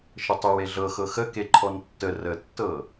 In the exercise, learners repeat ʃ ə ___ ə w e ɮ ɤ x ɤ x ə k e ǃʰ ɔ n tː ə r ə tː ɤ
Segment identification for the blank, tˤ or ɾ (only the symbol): tˤ